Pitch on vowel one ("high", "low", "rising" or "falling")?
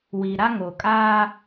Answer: low